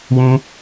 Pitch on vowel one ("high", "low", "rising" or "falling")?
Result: high